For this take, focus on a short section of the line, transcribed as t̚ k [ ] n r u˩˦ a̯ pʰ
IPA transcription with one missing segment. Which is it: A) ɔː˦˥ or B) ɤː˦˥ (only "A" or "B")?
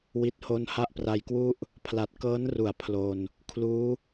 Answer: B